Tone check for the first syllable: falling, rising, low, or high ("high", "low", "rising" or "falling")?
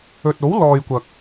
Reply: low